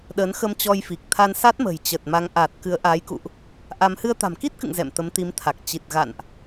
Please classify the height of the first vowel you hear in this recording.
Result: mid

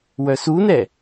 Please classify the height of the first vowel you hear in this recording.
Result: mid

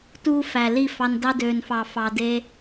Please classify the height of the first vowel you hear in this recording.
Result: high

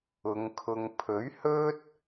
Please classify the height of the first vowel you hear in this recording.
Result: high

